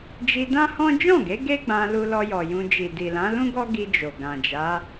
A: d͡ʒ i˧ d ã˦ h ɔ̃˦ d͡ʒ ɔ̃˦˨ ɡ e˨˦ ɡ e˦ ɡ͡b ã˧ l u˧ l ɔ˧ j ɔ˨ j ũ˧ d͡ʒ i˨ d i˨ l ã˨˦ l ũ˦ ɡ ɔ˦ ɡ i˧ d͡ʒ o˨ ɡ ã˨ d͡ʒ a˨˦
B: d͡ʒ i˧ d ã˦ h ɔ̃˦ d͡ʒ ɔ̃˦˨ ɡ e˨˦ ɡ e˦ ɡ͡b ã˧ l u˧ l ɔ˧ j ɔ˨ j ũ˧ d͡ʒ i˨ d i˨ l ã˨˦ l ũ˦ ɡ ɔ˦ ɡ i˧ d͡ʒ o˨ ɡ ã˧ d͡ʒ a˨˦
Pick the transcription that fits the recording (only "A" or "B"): A